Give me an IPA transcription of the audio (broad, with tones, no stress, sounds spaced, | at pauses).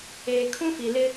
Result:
eː˨ kʰ ũ˦ f i˨ l ɪ˦